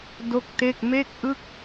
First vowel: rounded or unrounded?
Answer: rounded